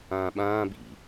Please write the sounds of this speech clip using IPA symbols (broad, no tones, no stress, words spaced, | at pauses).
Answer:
ãːɓãː bḭ